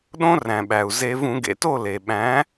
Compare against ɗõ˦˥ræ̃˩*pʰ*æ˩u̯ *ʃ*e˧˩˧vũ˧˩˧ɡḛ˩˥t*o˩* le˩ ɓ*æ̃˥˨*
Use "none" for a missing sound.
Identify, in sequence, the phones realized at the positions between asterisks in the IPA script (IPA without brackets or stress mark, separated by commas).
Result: ɓ, z, o˥˨, æ̃˩˥